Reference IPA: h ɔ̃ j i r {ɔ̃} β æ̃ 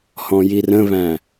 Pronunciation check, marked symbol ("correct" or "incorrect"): incorrect